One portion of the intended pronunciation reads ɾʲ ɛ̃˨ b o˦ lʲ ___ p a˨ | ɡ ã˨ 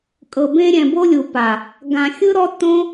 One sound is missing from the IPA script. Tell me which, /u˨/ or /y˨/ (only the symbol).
u˨